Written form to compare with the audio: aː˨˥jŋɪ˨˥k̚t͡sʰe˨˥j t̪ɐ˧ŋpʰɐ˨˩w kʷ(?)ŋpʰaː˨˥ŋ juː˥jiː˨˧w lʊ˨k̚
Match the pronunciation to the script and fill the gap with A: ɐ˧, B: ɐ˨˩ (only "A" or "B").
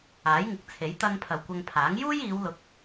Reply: A